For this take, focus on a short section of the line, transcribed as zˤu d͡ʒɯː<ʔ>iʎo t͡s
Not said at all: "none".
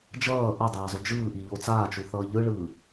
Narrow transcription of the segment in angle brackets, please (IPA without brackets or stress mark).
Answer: ʔ